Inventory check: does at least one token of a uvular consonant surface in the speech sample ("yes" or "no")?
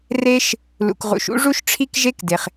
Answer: yes